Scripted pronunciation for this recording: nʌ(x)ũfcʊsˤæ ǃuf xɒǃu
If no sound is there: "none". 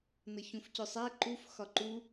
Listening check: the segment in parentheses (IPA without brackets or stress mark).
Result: ç